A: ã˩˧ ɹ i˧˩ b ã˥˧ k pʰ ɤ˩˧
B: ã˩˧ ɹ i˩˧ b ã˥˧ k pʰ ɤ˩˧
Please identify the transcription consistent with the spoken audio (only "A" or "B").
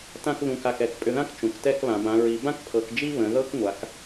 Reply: B